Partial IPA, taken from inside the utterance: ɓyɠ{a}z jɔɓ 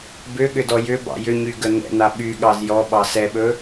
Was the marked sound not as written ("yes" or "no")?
yes